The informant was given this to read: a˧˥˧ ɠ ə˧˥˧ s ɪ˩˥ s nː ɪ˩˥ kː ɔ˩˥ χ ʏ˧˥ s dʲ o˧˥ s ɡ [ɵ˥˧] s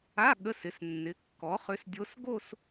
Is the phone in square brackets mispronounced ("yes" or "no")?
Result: yes